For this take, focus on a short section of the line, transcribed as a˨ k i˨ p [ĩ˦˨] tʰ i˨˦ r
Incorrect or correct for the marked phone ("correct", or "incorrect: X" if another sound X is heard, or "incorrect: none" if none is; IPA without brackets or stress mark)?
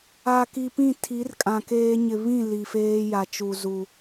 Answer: correct